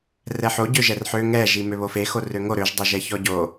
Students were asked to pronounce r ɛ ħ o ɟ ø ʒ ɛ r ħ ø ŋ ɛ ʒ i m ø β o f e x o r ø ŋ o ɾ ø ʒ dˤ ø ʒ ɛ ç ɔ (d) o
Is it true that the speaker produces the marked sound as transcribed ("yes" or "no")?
no